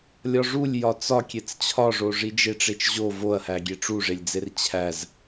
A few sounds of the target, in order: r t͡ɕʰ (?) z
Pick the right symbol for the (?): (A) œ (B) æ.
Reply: B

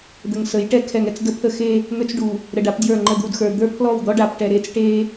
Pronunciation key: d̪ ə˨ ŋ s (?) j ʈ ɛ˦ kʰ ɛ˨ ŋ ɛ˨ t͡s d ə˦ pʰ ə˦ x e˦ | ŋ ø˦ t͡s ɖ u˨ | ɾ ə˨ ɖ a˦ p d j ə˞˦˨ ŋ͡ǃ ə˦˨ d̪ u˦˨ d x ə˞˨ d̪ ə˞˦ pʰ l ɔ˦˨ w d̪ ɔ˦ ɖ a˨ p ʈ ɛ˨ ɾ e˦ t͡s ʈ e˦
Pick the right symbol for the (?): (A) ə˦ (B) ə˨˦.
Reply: B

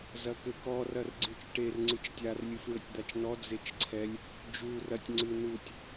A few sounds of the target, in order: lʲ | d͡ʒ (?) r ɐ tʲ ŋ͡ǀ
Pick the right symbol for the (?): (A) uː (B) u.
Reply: A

